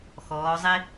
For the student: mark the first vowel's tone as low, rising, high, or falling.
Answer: rising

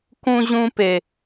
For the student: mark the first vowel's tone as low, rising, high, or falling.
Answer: high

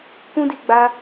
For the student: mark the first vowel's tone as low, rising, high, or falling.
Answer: high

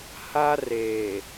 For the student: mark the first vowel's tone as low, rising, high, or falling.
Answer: high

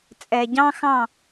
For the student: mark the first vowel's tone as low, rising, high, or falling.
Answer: low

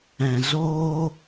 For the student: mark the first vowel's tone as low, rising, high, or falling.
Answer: low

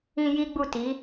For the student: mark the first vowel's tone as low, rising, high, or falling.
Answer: high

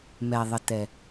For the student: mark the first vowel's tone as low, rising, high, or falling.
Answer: low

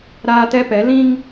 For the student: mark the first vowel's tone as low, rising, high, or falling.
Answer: high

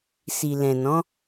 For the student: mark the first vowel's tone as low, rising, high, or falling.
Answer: low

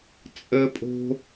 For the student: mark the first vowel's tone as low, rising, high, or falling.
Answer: high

